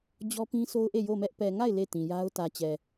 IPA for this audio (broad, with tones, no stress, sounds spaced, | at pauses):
d͡ʑ ɔ˦ p ĩ˦ sʰ o˦ ʊ̯ ʔ e˦˨ j o˦˨ m ɛ˦ ʔ p ɛ˨ ŋ a˦˨ ɪ̯ l e˦˨ t ĩ˨ j a˦ ʊ̯ t ä˨ t͡ɕ ɛ˨